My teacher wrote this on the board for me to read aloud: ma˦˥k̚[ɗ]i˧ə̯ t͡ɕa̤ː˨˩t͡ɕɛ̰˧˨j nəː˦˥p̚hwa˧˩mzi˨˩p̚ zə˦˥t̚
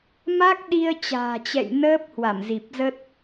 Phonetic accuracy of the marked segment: correct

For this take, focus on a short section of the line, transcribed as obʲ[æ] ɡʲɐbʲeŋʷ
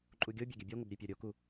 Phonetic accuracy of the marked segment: incorrect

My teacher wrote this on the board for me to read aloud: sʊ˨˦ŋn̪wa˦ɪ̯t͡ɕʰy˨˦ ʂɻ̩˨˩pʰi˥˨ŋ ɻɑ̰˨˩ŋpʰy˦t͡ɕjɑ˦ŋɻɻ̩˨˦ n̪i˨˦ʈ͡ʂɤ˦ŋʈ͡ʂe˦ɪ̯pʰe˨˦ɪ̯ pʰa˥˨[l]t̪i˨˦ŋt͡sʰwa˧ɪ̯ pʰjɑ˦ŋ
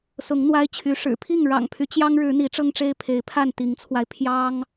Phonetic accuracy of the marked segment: incorrect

